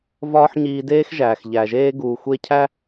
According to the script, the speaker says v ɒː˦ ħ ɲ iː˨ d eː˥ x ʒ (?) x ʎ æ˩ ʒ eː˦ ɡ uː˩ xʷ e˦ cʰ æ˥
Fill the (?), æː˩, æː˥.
æː˩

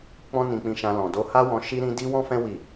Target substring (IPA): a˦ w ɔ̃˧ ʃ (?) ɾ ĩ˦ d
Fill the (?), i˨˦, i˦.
i˦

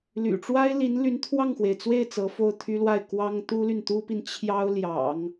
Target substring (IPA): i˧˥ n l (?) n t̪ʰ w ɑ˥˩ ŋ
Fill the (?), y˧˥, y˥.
y˧˥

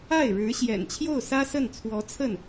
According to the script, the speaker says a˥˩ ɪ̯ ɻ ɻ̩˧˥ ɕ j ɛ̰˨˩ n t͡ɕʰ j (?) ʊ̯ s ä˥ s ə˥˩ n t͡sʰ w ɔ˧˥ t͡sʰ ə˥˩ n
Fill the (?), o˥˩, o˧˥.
o˥˩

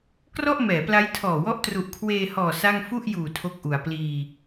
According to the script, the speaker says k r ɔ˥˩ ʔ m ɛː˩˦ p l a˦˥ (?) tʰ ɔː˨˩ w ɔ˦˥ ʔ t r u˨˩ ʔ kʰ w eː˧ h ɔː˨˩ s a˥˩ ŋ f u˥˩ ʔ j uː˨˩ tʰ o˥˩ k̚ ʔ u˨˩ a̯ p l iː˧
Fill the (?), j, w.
j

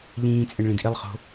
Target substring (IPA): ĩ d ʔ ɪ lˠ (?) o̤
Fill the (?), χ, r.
χ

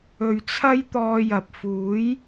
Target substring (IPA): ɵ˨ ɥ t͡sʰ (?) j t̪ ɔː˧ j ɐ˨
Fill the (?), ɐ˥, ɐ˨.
ɐ˥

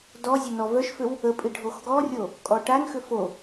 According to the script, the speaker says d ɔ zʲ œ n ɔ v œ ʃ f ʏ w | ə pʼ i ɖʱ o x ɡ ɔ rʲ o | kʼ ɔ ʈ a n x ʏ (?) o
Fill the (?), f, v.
f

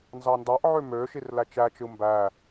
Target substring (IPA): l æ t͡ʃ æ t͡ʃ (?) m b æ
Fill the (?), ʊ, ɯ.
ɯ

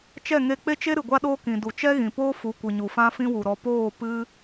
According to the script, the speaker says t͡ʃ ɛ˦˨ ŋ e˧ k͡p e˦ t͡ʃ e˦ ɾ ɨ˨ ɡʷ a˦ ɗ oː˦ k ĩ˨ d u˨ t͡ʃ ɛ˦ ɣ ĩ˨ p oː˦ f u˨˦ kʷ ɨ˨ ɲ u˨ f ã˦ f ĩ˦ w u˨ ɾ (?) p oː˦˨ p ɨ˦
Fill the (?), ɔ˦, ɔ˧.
ɔ˧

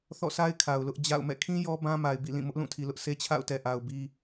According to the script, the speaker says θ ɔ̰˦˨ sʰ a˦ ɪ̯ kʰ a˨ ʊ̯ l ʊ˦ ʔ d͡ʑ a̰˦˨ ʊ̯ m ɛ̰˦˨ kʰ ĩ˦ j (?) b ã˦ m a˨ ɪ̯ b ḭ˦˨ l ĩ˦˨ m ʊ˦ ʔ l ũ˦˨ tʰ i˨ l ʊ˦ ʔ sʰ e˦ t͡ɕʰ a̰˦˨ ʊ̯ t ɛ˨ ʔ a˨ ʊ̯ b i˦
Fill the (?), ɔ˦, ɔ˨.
ɔ˦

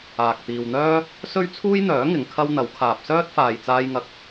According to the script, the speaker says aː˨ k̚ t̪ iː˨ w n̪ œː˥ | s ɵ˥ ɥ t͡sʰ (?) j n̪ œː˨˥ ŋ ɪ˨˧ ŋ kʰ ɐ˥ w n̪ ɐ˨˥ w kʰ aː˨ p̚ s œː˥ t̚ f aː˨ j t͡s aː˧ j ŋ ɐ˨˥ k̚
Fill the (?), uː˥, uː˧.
uː˥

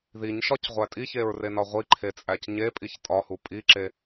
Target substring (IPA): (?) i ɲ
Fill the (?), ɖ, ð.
ð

